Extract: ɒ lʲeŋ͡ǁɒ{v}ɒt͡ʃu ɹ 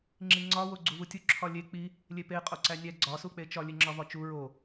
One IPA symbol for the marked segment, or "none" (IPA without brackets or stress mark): v